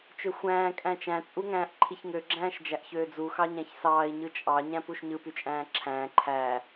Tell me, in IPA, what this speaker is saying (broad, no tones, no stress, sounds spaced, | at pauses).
t͡ʃ ø xʷ æ̃ː kʼ æ̃ t͡ʃ æ̃ t͡sʼ u ŋ æ̃ː ʔ ǃʰ i ç ŋ ø ɡ͡ǁ æ̃ː ʃ d͡ʒ æ ʔ ç øː d͡z u x ɑ ɲ æ̃ ç s ɑː i̯ ɲ ɯ t͡ʃʼ ɑ ɲ æ̃ p u ʃ ɲ ɯ p y t͡ʃʼ æ̃ː ǁʰ æ̃ː ǃʰ æ